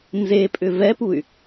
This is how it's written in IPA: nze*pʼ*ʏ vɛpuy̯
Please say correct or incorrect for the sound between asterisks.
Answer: correct